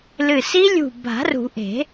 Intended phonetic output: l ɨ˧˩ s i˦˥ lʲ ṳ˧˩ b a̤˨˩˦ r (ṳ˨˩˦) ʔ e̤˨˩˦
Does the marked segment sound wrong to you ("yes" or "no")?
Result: no